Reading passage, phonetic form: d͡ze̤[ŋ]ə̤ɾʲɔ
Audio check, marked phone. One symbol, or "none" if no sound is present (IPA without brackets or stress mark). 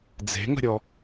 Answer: ŋ